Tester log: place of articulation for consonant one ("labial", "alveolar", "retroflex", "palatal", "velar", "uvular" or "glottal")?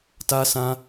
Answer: alveolar